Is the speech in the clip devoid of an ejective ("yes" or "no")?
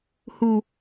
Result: yes